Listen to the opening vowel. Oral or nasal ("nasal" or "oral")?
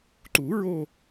oral